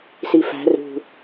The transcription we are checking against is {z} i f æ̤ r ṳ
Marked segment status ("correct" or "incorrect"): incorrect